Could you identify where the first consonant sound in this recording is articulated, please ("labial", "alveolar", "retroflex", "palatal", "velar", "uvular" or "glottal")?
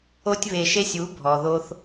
alveolar